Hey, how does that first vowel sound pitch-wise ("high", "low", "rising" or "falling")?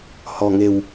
low